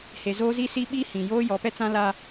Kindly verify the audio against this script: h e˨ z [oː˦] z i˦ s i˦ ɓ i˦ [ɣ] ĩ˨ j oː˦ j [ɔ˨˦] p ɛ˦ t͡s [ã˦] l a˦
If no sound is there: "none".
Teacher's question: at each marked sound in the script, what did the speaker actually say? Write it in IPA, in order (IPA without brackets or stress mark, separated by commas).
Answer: oː˦, h, ɔ˨˦, ã˦